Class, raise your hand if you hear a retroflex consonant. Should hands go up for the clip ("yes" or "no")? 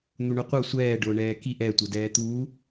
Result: yes